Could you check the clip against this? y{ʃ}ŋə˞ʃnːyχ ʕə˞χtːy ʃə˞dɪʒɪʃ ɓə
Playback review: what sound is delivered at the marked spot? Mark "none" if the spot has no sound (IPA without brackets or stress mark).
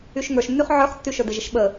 ʃ